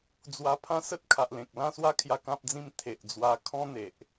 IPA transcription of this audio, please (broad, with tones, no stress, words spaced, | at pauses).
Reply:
d͡zwa˧pʰã˦sə˦t̚ kʰa˨ʔlẽ˨k̚ lã˥˧swa˦kʰja˧ kã˦p̚d͡zĩ˥˧m t̪ʰe˨ʔd͡zwa˧ kʰɔ̃˦n̪e˨ʔ